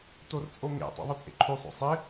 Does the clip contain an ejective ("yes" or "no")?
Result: yes